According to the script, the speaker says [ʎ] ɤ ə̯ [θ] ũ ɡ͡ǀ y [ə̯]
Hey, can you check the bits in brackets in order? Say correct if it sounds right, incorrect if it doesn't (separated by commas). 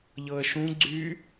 correct, incorrect, incorrect